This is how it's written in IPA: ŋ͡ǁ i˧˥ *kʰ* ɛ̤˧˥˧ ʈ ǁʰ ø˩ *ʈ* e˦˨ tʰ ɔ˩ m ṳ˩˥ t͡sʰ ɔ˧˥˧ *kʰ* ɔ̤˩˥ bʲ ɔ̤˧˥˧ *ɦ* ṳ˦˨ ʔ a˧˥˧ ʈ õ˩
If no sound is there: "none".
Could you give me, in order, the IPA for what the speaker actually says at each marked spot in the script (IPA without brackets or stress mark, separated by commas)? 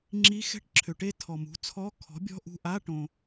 x, ʈ, kʰ, ʔ